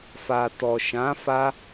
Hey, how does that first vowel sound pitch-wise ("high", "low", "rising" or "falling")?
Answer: low